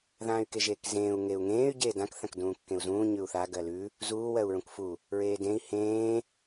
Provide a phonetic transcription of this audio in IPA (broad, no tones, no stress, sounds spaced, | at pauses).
ð ãː y̯ k e ʒ eː k z ẽː u̯ ŋ e u̯ ŋ ẽː y̯ ɟ eː d ã k θ ã k d ũː kː ẽ u̯ z ũː ɲ ʉ u̯ θ a ɡ ɜ l ʉ | z uː w ɜ u̯ ɹ ũ k f u | ɹ eː d ẽ i̯ h ẽː